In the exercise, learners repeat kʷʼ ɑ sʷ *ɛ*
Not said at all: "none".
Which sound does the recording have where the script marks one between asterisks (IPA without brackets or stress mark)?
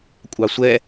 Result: ɛ